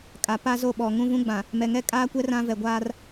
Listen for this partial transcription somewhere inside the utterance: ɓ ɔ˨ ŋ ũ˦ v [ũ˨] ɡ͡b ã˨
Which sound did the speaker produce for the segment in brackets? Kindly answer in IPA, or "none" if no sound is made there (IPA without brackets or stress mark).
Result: ũ˦